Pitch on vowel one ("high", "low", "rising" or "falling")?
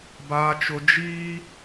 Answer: high